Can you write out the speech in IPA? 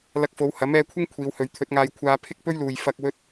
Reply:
lɐ˧k̚fo˨˧w hɐ˨˥mɛː˧kʷʰɪ˥ŋ kʷʰiː˨˧whɵ˨˧ɥt̪ʰɵ˨˥t̚ŋaː˧j kʷʰaː˧ pʰɪ˥k̚pɵ˥ɥluː˨j fɐ˧k̚ wɵ˧t̚

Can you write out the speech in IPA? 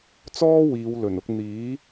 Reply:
t͡sɔː˥wiː˨˧w lɵ˨˩nʊ˧k̚ n̪iː˨˥

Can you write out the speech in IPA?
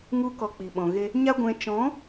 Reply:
ŋu˦kɔ˧k͡pi˨ ɓɔ̃˨ɣe˧ | ɲa˦ɡʷɛ̃˧ t͡ʃɔ̃˨˦

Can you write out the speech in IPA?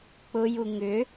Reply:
k͡pʊju ŋʏ

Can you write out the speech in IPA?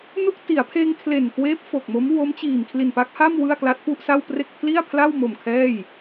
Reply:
nu˥˩k̚ ti˩˦a̯pʰeː˧ŋ kʰle˨˩nkweː˦˥p̚ fo˨˩k̚mo˦˥m wo˦˥mt͡ɕiː˨˩m kʰli˨˩npa˦˥k̚ha˥˩m wɯ˥˩a̯kla˦˥t̚pu˥˩ʔsa˥˩w pre˥˩k̚ pʰli˥˩a̯ pʰla˥˩wmo˨˩m kʰɛː˥˩j

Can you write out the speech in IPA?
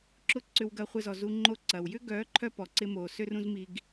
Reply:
ǁʊ˧ ǀʏ˧wɡɐ˧χʷɪ˧zɔ˨ zu˨ŋ͡ǃo˨˦ ǀɐ˨w jʏ˦ɡœː˨˦ǃʰœ˧ pɔ˨ǀɪ˧moː˨ sø˦rũ˦zmi˧ɡ

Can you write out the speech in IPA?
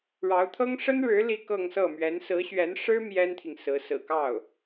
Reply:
ɻɑ˧˥ʊ̯t̪ʰɤ˥ŋ ʂə˥nɻɻ̩˧˥ li˥˧kɤ˥˧ŋsɤ˥˩ mɥɛ˧˥n sɹ̩˧˥ɕɥɛ˧˥n ʂɻ̩˥ mjɛ˥nt̪ʰi˨ŋsɹ̩˧˥ sɹ̩˨˩kɑ˥˩ʊ̯

